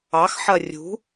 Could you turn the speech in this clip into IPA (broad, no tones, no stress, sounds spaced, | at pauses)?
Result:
ɑ x ħ ɐ rʲ ṳ